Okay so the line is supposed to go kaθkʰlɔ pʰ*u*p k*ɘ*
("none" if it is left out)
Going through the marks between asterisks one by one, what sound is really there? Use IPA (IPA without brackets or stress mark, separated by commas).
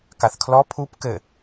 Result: u, ɘ